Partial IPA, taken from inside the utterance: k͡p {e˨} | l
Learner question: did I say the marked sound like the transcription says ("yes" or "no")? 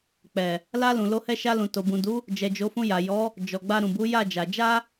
no